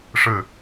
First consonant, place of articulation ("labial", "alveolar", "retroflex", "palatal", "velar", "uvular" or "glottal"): retroflex